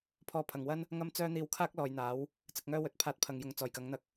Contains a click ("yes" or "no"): no